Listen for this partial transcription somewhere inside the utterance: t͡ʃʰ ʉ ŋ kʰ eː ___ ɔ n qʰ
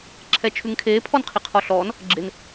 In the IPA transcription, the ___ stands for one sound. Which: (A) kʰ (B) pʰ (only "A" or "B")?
B